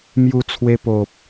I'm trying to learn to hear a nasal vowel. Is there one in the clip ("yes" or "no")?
no